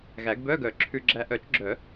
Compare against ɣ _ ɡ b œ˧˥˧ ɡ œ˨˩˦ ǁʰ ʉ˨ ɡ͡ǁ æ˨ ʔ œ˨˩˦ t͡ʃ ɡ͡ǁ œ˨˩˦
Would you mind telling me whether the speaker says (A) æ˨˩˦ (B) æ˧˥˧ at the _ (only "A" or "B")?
A